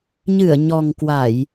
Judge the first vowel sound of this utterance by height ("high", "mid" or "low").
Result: high